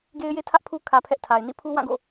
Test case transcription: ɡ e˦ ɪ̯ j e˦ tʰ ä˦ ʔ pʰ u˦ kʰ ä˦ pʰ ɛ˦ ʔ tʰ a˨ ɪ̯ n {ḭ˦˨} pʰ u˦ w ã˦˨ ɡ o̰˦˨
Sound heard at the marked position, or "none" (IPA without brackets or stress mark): ḭ˦˨